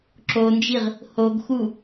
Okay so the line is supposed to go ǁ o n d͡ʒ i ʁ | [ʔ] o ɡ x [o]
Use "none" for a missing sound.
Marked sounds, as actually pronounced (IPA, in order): h, u

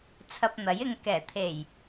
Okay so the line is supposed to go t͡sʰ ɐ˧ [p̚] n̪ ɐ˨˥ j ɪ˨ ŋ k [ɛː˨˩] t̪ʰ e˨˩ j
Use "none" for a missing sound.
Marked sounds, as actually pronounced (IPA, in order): p̚, ɛː˨˩

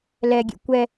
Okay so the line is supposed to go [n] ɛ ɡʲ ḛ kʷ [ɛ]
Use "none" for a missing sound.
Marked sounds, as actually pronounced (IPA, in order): l, ɛ

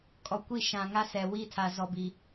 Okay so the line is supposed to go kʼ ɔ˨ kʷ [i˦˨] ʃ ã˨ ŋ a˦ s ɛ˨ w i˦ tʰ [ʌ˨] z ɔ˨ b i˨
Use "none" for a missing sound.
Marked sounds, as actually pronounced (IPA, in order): i˦˨, a˨

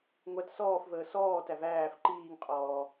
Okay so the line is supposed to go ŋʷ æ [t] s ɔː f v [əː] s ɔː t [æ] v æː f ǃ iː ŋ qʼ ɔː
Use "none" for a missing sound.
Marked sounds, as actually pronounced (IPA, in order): t, əː, æ

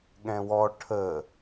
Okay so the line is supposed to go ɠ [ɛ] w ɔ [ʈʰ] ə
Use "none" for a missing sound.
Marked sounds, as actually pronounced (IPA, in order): ɛ̃, ʈʰ

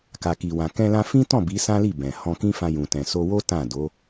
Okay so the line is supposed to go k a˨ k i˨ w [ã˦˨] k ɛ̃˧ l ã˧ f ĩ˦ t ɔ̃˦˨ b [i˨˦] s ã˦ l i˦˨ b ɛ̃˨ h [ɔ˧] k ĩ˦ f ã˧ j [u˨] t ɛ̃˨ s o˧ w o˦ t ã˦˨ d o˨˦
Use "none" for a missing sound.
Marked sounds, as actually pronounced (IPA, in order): ã˨, i˨˦, ɔ̃˧, ũ˨

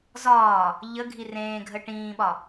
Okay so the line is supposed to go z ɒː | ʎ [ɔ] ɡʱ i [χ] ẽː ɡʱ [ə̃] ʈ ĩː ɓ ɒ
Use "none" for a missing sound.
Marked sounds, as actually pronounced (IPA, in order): ə, r, ə

